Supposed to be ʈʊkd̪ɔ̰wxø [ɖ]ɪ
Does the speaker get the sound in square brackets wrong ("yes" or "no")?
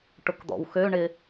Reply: yes